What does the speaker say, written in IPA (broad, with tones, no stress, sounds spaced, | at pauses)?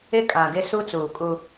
ɪ˦ kʼ ã˨ ɡ ɪ˦ s u˦ t͡s uː˨ kʼ u˦